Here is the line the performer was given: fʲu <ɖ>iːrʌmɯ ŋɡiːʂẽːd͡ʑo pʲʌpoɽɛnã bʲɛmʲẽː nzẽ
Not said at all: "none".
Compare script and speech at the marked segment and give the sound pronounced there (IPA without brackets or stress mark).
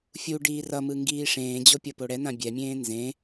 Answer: ɖ